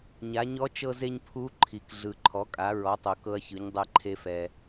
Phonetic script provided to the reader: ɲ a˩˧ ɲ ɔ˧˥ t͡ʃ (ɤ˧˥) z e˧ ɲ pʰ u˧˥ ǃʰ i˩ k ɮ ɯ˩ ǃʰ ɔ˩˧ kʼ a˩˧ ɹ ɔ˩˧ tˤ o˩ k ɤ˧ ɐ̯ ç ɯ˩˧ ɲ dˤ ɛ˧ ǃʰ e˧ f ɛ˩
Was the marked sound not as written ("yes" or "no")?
yes